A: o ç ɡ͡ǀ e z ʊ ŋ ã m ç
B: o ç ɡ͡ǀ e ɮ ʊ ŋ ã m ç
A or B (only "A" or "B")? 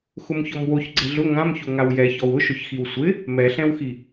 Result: B